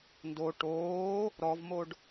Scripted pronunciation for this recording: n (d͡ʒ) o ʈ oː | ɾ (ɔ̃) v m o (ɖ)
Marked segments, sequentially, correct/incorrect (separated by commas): incorrect, incorrect, correct